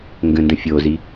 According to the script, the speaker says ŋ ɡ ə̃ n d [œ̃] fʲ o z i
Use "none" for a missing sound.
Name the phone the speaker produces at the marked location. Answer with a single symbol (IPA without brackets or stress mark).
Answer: ə̃